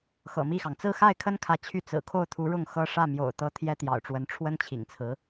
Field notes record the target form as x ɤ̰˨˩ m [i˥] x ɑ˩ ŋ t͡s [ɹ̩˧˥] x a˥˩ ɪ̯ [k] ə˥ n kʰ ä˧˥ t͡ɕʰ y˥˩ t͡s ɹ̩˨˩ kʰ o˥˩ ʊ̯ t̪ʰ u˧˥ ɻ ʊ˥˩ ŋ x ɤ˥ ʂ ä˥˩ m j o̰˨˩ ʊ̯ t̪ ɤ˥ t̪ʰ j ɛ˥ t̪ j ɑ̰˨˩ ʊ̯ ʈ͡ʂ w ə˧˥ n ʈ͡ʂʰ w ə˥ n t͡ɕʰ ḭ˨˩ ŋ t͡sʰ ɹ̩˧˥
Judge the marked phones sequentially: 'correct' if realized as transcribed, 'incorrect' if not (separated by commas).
incorrect, incorrect, incorrect